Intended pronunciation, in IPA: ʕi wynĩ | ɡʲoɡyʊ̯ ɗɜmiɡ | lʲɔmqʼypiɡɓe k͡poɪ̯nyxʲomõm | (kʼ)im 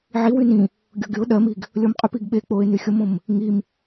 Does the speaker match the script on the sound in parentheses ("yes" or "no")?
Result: no